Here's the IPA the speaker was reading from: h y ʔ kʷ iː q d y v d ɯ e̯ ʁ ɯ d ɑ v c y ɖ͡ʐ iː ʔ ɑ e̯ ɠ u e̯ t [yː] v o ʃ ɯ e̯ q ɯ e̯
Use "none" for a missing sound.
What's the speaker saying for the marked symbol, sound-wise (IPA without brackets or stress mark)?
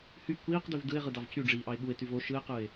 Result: y